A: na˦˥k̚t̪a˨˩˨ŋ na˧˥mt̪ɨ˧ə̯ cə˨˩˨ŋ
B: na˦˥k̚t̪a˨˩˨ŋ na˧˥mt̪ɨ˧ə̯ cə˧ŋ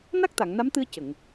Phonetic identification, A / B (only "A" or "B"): A